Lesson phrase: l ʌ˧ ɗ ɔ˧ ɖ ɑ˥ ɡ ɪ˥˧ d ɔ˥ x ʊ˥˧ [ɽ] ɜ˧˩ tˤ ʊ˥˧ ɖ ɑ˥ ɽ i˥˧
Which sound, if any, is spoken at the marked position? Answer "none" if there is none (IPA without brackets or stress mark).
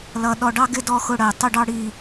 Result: ɽ